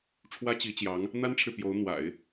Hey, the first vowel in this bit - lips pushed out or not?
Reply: no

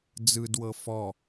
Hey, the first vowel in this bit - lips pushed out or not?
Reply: no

